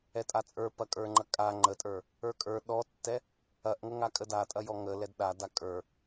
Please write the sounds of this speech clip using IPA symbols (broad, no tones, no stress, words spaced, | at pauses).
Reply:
ɛtʼat͡sʼə˞ pɐkʼə˞ŋ͡ǃɐkʼa ŋ͡ǃətʼə˞ | ə˞kʼə˞ ɗɔtːɛ | ɐʔŋəŋa kʼədatʼɐjɔ ŋəlɛd ɗa dakʼə˞